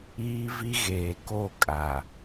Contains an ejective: yes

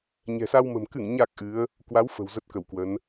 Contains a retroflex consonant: no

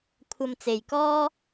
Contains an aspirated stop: yes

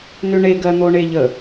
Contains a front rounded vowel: yes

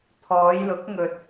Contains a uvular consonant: no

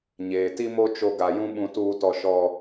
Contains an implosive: yes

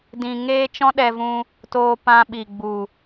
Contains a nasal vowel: yes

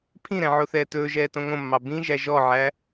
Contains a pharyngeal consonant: yes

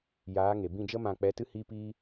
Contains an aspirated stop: no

